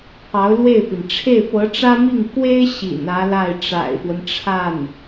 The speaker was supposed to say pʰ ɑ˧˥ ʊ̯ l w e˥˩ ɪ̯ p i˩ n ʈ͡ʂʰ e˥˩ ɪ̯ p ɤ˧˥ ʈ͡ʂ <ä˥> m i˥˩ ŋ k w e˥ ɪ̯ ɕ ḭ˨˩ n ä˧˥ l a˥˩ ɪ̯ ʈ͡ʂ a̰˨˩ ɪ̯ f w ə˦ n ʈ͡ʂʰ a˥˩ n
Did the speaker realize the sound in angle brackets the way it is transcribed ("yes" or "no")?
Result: yes